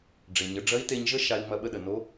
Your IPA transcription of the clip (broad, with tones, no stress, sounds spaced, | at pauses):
ɖ͡ʐ e˩ ɲ ə˩˧ ɖ͡ʐ ɐ˧˥ i̯ t e˧ ɲ ʒ ə˥ ʃ a˧ i̯ ŋ͡m ɐ˧ ɓ ə˧ ɗ ə˩ n o˧˥